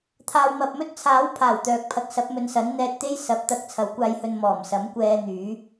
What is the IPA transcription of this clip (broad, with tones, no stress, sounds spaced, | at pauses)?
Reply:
t̪ʰ aː˨ w m ɐ˨ p̚ m ɵ˥ t̚ t͡sʰ aː˨˥ w pʰ aː˨˩ w t̪ œː˨ k̚ pʰ ɐ˨˥ k̚ s ɐ˨˥ p̚ m ɵ˨˧ n s ɐ˨˥ n n̪ ɛː˧ t̚ t̪ e˥ j s ɐ˨˥ p̚ t̪ ɐ˧ k̚ t͡sʰ ɐ˨˥ w kʷ aː˧ j h ɵ˧ n m ɔː˨˩ m s ɐ˨˥ m kʷ ɛː˧ n̪ yː˨˥